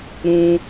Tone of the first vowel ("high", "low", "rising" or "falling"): high